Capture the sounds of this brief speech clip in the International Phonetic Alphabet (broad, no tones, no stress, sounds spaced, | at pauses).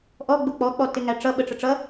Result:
ʔ ɔ ɡ͡b ʊ k͡p ɔ k͡p ɔ t ɪ ŋ æ ʈ͡ʂ ʌ ɓ ə ʈ͡ʂ ə ʈ͡ʂ ʌ